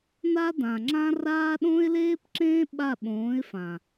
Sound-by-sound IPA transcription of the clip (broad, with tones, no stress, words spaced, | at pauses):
na˦dã˨ŋ͡ǁã˦raː˦ ɗõ˦ɪ̯leː˦pǁẽː˦ ɓa˦˨ɓõː˨˦ɪ̯fã˨